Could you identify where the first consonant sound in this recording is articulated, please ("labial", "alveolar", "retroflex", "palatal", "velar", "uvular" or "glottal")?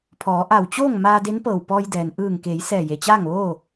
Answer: labial